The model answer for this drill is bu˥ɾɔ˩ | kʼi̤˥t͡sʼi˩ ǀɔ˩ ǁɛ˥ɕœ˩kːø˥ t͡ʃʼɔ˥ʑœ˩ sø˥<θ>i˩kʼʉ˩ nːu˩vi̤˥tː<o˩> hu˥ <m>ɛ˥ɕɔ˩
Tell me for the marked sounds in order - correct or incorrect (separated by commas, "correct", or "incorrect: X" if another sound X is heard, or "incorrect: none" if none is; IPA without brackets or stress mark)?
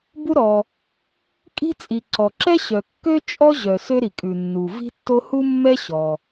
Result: incorrect: ɾ, incorrect: o˥, incorrect: mː